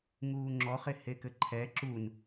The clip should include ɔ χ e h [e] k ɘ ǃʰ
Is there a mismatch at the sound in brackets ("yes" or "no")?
no